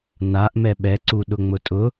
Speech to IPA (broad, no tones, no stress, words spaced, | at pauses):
naʔmɛ ɓɛǀuɗʊŋ͡mʊ tʼʊ